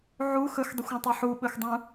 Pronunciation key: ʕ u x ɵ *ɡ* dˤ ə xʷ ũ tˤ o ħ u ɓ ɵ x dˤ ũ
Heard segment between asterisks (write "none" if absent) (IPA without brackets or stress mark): x